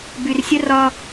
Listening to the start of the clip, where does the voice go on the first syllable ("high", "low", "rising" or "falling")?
low